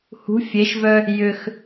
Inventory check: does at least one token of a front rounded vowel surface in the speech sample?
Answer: yes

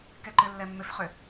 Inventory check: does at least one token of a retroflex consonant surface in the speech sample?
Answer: no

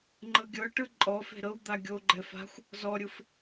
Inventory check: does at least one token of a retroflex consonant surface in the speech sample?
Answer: yes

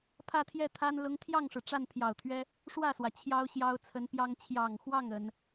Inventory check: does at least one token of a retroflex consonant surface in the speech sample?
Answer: yes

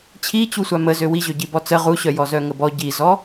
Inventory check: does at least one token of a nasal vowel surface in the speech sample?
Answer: no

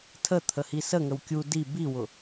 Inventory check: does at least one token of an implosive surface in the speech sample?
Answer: no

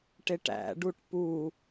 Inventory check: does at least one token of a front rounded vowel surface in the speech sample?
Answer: no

